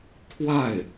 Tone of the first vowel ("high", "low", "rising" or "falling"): falling